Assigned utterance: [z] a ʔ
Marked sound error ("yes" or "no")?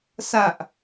yes